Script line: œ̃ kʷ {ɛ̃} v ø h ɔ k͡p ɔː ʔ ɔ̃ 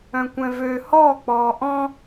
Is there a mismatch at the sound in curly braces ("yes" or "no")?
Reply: no